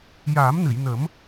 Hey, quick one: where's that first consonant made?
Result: palate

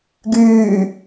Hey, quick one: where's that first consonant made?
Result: velum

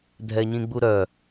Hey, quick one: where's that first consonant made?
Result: tongue tip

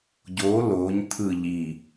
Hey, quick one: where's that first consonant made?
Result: palate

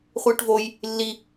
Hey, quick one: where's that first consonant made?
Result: uvula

